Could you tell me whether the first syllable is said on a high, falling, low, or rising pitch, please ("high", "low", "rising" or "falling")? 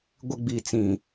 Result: high